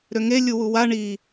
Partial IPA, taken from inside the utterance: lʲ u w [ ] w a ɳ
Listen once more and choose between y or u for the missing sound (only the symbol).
u